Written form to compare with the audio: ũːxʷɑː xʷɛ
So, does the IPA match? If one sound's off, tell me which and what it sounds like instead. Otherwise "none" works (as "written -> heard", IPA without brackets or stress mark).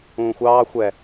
none